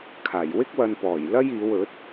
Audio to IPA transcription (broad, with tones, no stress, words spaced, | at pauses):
kʰaː˨˩jwɪ˥k̚wɐ˧n pɔː˨˩jlɐ˥jiː˨˧w ɵ˨˥t̚